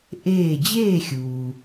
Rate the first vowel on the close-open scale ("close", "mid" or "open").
mid